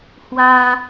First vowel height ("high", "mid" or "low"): low